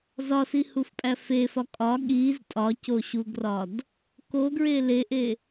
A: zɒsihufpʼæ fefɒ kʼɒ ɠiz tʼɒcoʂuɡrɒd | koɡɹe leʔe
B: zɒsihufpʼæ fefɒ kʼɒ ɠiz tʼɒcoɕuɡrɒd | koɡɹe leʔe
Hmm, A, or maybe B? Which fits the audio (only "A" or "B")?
B